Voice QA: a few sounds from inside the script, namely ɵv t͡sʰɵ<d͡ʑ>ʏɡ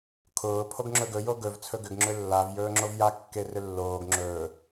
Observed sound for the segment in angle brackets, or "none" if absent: ɡ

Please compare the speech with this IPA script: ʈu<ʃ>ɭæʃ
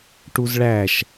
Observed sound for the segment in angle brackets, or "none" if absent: z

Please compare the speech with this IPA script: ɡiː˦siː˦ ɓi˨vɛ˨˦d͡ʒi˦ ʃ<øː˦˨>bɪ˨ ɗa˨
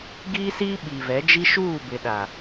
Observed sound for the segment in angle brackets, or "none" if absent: uː˦˨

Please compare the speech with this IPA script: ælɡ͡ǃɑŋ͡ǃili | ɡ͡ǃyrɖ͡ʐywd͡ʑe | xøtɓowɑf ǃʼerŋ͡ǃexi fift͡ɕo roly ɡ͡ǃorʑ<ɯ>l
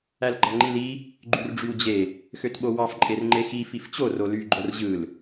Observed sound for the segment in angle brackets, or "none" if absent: ɯ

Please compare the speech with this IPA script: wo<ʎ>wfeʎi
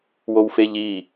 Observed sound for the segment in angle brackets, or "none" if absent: none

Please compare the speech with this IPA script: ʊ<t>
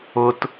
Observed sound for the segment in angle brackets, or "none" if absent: t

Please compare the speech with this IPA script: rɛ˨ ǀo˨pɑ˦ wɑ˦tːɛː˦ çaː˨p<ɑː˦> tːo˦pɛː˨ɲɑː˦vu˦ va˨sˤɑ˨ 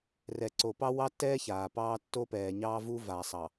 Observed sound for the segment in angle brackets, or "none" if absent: ɑː˦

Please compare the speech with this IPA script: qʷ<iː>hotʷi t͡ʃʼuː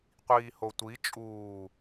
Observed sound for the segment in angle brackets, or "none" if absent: iː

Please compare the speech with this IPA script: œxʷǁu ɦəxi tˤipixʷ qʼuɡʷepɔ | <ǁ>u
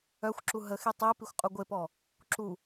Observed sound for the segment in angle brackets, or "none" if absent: ǁ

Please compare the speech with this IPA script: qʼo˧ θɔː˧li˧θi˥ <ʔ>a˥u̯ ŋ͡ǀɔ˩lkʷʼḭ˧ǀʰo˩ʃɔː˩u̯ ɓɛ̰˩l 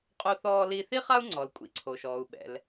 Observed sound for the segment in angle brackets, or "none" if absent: χ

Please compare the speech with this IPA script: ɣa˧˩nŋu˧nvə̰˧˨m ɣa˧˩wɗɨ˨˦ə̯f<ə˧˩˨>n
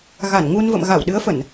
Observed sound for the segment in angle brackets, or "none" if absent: ə˧˩˨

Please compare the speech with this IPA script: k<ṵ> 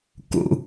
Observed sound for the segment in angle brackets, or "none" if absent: ṵ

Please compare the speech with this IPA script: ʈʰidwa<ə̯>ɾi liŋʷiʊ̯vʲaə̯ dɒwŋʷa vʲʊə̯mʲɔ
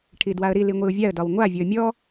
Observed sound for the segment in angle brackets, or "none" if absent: ə̯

